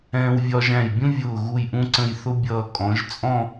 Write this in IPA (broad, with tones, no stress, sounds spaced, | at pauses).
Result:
ɛ̃ː˧ w vʲ ɒ˧ ʒ æ̃˧˩ j bʲ ũ˥ vʲ ʊː˧˩ ɣ u˧˩ j ʔ ũ˧ ǀ ə̃˧˩ j θ ʊ˥ bʲ ʌː˧ kʼ ɔ̃˩˧ ʒ t͡sʼ ɔ̃˥˧